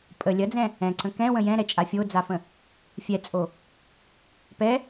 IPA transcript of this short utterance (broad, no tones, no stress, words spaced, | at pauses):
pʼə lʲɐd͡zɛ̃ | ɛ̃ǀə̃ kɛ̃wə̃ jɛ̃ɾɛt͡ʃʼa fʲod͡zafə̃ | fʲɛt͡sʼo | pɛ